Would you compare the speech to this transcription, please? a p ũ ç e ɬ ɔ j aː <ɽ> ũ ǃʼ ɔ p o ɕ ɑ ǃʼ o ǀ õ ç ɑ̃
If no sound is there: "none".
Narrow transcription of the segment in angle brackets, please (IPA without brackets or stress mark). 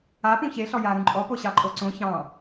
ɾ